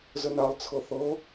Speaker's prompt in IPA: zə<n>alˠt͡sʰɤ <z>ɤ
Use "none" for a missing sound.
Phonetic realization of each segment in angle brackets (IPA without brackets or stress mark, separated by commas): n, θ